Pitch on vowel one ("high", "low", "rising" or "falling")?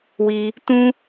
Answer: high